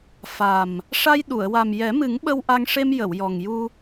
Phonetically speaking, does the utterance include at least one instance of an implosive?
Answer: yes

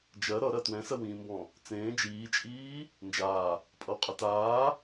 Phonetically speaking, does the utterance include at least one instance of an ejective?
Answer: yes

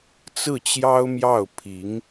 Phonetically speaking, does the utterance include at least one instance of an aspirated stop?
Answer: yes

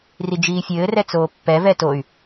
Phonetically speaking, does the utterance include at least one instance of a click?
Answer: no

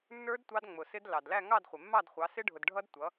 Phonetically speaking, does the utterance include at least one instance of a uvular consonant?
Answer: yes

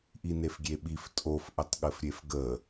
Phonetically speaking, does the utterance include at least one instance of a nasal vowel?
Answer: no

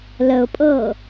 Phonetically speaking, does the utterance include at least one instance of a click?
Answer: no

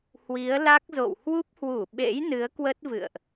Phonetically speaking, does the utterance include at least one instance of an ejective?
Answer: no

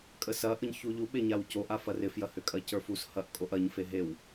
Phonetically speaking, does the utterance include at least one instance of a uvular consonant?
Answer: no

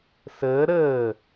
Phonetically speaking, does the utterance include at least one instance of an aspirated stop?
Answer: no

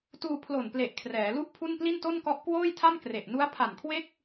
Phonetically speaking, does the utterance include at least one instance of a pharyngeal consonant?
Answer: no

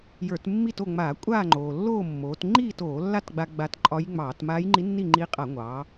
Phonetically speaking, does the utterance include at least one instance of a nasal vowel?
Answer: no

